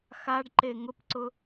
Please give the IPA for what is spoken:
x a ɖ ǃ e ŋ ʊ p ǀ ʊ

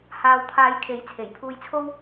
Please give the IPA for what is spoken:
h aː˨ w t̪ʰ aː˨˧ j kʰ e˨˥ j t͡sʰ e˨˩ j pʰ uː˧ j t͡sʰ o˥ w

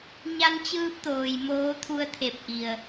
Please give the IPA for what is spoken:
ɲ a˧ n t͡ɕ ɯː˧ p̚ t̪ oː˩ j m oː˧˥ t̪ʰ u˧˥ ə̯ t̪ʰ e˧˩ p̚ ʔ i˩ ə̯

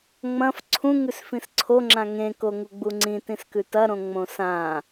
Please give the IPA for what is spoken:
ŋ͡m ɐ̃ f ǀʰ ũ ŋ ʉ s f ĩ s ǀʰ o ŋ͡ǁ ã ŋ ẽ k o ŋ u ɡ͡b u ŋ͡ǀ ĩ t ĩ s k ʉ t ɐ ɾ õ ŋ͡m õ s ã

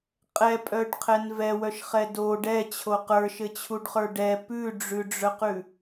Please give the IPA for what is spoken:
qʼ ɛ pʼ œ ɖ qʰ ɛ n v ɛ w œ ʃ χ ɛ d o ɖ ɛ t͡ɕʰ o q ə˞ ʃ ɘ t͡ɕʰ u ɖ χ ə˞ ɖ ɛ p ʉ ɖ͡ʐ ʉ ɖ͡ʐ œ q ʉ

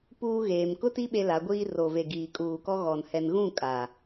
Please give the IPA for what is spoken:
p uː˦ ɣ eː˨ m k ʊ˦ t i˦ ɓ e˦ l a˨˦ ɡʷ iː˦ r o˨ v e˨ ɡ iː˨ kʼ uː˨ k ɔ˦ ɣ ɔ˨ n h ɛ˨ n ɣ ũ˦˨ kʼ aː˨

